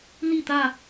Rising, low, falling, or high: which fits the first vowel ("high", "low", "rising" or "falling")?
falling